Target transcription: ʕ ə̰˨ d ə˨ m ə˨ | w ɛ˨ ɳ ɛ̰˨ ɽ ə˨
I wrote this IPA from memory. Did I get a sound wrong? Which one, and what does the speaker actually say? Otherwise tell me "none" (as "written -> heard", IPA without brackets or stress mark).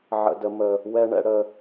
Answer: none